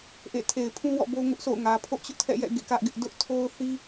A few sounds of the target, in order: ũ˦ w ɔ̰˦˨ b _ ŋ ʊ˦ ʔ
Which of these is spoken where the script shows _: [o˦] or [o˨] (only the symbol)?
o˦